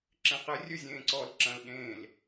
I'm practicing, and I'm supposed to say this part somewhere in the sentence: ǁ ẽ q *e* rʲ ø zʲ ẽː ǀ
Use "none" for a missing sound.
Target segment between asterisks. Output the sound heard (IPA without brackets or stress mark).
e